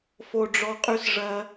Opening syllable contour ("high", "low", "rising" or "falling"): high